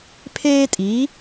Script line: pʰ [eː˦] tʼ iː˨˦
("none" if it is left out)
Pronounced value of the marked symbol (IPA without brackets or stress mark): eː˦